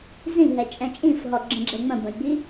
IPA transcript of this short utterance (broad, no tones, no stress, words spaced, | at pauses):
zĩɦɛt͡ʃʼɛ̃ t͡ʃʼĩfɦɔɡ͡ǁə̃ɡ͡ǁɛ ŋ͡mə̃bə̃jɡ͡bi